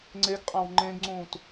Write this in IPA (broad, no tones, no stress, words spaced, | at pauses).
ŋ͡ǀeɡqʼãw ŋ͡ǃẽɡŋ͡ǀũːt